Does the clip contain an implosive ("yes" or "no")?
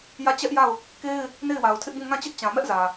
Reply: no